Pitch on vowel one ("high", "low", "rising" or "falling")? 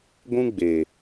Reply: high